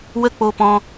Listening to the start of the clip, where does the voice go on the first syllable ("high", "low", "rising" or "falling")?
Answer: high